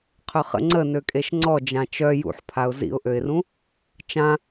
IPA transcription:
qʰœχə̰ ŋ͡ǀənø kʼeʃŋ͡ǀɔ d͡ʒãt͡ʃœ jṵħpʰaʊ̯ zḭʊ̯ʔøɪ̯rũ | t͡ʃã

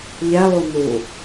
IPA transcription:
ʎɛlˠu nu

